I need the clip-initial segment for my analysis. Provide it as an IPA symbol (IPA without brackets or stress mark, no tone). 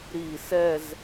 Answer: ɾ